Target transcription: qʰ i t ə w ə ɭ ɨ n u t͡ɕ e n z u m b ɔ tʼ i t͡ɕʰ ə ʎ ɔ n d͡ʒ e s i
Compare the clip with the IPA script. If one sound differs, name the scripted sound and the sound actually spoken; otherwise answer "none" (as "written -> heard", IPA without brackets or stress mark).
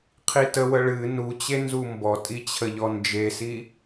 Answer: none